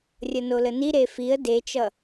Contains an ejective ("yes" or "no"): no